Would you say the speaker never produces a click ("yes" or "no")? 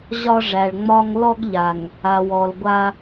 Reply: yes